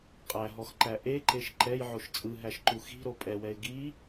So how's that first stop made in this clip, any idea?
ejective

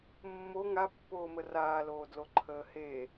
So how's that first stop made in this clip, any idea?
plain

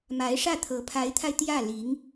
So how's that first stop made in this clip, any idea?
aspirated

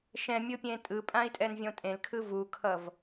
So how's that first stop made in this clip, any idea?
plain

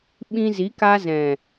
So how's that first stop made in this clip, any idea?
implosive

